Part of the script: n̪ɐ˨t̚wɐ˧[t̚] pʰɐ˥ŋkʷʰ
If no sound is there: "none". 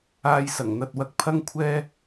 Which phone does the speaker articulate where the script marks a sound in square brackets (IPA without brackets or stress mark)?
k̚